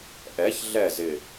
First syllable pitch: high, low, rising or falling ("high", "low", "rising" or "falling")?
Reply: rising